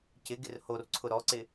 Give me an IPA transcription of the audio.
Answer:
c ɪ ɡ ɪ r h o r ǀʰ ʊ ɾ ɔ ǀ ɪ

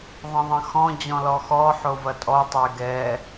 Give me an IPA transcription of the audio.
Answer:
ðˤ ɐ̃ ðˤ ɐ̃ x ɔ̃ d͡ʑ ɔ̃ l ɔ x ɔ ħ o v ɐ tʼ ɔ tˤ ɛ ɡ ɛ

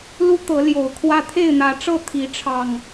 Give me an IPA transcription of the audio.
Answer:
l u˦ t̪ ɤ˨˦ l j o˨˩ ʊ̯ kʰ w ä˦ t̪ʰ e˥˨ ɪ̯ n̪ ä˨˦ ʈ͡ʂ ɤ˥˨ t̪ʰ i˨˦ ʈ͡ʂʰ ɑ˨˩ ŋ

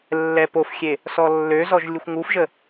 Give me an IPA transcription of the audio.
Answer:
lː ɛ p o f xʲ e | s ɔ lː ø z ɔ ʒ lʲ u xʷ ŋ u f ʒ ə

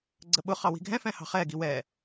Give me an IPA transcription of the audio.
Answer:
ɡ͡ǀ ə ɓ ʊ χ ɑ w i̤ ɡʱ ɛ̃ f ɛ̃ h ɑ̤ χ ɛ ɡ i w ɛ

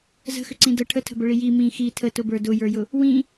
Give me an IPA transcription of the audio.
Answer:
z ə̤ x ʏ ǀ ĩ d ə ʈʰ ə tʰ ə̤ b ə ɭ i j i m ĩ x i tʰ ə t ʊ b ə˞ d ʊ j ə˞ j ʊ | w ĩ

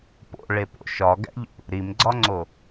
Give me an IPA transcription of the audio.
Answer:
p o̰ ɭ e p o̰ ʃ ɒ ɡ æ̰ ʎ ṵ | ɾ i m ɡ͡ǀ ɒ ŋ͡ǀ o

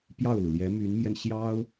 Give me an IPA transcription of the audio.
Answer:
p j ɑ˥˩ ʊ̯ l u˩ l j ɛ˧˥ m y˧˥ n m j ɛ˧ n ɕ j ɑ˥ ʊ̯

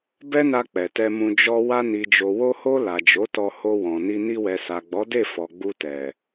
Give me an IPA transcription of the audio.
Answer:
b ɛ˦ n a˧ k͡p ɛ˨ t ɛ˧ m ũ˧ d͡ʒ ɔ˧ w a˧ n i˨ d͡ʒ o˨ w o˧ h o˧ l a˨ d͡ʒ o˨˦ t ɔ˧ h o˧ w ɔ̃˨ n i˧ n i˧ w ɛ˨ s a˨ ɡ͡b ɔ˨˦ d e˦˨ f ɔ˨ ɡ͡b u˧ t ɛ˨

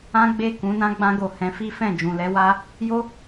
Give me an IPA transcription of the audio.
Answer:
ã˦ ɡ͡b e˦˨ k ũ˨˦ n ã˦ ɡ͡b ã˧ ɡ o˨ h ɛ̃˨˦ f i˦ f ɛ̃˦˨ d͡ʒ ũ˨ l ɛ˨˦ w a˦ | j o˦

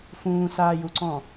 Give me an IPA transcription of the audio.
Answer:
f ũː s aː j u ǀ ɔ̃

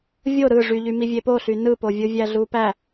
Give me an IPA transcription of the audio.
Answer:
vʲ o ɾ ɯ ʐ y ʎ y m i vʲ e p o ɬ y n ɯ p o vʲ ɯ vʲ æ ɮ u p æ

